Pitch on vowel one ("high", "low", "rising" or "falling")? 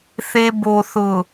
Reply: high